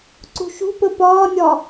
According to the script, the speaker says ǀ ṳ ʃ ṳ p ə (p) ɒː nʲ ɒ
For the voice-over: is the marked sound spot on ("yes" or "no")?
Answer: yes